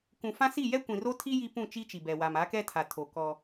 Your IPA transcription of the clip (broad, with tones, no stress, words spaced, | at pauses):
kũ˨fã˦si˦˨ jɛ˦kʷĩ˨ro˦tʰi˦ ji˦pũ˦˨ t͡ʃi˦t͡ʃi˨bɛ˨ wa˨m a˨˦kɛ˦tʰa˨ tʰo˨ kɔ˦